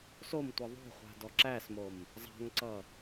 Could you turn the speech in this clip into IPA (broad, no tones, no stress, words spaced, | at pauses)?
somtʷʌ ðˤo̤χʷa̤ dɔǁæsmom | zˤa̤ŋǀʌ